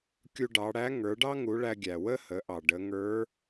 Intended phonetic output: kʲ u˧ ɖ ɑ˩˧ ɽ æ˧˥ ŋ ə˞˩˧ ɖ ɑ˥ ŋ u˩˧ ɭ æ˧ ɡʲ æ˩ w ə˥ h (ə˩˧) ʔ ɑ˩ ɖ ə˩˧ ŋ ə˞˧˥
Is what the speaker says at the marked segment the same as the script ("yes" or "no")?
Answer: yes